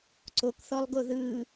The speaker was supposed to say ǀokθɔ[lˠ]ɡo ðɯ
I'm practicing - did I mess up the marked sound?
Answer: no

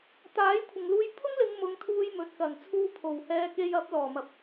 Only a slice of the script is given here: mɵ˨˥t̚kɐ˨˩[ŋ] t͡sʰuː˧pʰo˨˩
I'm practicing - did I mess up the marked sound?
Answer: no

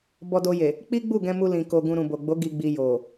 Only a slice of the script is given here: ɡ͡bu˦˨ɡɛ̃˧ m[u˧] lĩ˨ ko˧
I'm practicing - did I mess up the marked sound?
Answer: no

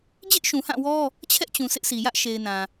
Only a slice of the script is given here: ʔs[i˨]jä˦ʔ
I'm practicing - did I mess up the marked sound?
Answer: no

